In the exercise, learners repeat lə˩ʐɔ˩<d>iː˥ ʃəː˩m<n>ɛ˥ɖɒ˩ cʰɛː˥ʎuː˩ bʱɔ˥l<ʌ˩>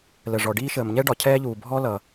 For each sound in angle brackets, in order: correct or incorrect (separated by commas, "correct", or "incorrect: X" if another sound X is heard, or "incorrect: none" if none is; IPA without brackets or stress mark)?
incorrect: ɖ, incorrect: ɲ, correct